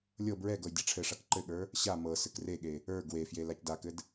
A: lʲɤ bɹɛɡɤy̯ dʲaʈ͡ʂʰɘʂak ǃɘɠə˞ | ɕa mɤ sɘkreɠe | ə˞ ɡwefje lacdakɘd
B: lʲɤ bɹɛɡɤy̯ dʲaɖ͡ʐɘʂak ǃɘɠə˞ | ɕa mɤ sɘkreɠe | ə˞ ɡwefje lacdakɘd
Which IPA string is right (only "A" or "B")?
A